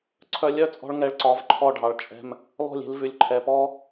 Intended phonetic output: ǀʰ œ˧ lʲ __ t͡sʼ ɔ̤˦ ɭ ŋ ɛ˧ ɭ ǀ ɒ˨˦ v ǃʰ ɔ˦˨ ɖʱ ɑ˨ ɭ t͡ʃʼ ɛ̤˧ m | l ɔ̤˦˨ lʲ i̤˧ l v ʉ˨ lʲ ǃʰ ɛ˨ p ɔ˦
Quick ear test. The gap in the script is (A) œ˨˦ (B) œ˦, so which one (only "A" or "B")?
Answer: B